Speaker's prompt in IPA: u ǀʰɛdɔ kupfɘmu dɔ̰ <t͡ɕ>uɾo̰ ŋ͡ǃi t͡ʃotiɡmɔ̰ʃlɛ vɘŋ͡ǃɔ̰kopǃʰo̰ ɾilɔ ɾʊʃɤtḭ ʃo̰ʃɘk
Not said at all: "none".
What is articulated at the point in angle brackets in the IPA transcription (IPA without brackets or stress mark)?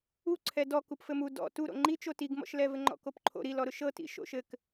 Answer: t